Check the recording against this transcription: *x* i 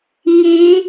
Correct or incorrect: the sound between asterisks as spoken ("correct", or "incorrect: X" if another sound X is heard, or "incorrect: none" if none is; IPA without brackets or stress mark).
incorrect: ŋ